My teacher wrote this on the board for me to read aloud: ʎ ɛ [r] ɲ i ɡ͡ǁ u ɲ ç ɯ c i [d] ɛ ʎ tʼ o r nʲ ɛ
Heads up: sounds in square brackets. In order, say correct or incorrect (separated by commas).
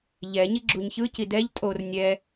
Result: incorrect, correct